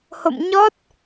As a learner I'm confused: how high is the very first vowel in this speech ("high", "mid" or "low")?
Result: mid